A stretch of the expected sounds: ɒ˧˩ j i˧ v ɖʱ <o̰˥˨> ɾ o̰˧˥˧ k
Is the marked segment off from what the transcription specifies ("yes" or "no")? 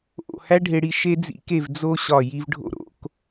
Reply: no